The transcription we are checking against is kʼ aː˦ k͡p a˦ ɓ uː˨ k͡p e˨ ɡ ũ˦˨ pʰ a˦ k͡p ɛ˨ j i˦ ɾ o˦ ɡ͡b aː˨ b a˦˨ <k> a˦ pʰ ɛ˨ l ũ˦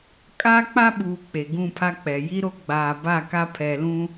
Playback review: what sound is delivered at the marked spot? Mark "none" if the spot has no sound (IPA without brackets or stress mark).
k